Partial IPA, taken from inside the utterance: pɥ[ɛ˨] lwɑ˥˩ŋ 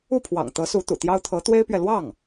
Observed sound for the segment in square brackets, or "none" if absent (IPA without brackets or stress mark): ɛ˨